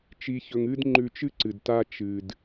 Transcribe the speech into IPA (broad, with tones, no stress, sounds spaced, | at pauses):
t͡ʃ i˧ ç ɵ˧ ŋ ɨ˥ d ŋ͡ǃ ʉ˧ t͡ʃ ɨ˥ ǀ ɨ˩ d t a˧ t͡ʃ ɨ˩ d